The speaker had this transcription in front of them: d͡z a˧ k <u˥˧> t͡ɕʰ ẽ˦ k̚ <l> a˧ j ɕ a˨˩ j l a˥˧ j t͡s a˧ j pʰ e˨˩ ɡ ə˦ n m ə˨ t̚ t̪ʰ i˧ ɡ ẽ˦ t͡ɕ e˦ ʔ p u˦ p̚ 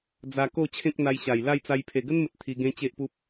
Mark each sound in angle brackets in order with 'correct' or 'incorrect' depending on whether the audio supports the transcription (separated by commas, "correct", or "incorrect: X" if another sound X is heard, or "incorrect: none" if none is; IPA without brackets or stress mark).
incorrect: o˥˧, incorrect: n̪